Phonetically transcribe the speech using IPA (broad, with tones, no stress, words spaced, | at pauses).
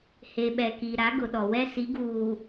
he˨ɓɛ˨ki˨ ɾa˨˦ɡʊ˨ɗɔ˨wɛ˦ si˨˦ɡuː˨